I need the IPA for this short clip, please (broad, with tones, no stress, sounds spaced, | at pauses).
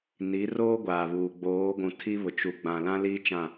n i˨˦ r oː˦ ɡʷ aː˨ β uː˨ ɡ͡b oː˨˦ ɡʷ ũ˨ tʰ i˦ β ʊ˨ t͡ʃ u˨ ɡ͡b ã˨ l ã˦ l iː˦ t͡ʃ ã˦˨